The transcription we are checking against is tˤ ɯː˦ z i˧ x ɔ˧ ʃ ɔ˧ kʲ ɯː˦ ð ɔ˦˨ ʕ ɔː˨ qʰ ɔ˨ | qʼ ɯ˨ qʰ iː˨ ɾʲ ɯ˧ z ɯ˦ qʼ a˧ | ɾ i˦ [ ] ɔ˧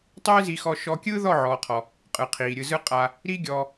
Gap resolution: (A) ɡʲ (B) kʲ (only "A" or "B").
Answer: A